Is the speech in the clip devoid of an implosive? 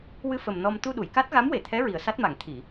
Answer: no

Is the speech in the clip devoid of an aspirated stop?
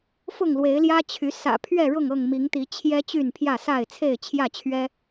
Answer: no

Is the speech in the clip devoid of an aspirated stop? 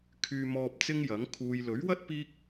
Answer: no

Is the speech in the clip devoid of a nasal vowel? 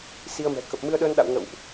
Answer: yes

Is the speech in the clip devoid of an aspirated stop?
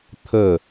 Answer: no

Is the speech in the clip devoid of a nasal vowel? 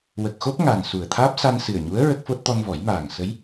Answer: yes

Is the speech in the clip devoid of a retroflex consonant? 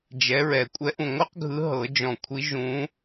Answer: yes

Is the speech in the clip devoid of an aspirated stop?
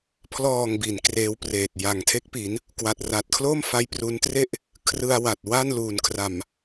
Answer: no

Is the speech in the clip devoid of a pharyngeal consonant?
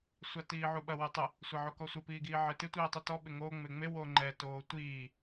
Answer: no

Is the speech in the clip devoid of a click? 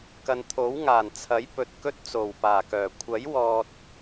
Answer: yes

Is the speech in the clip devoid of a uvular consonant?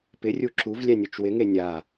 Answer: yes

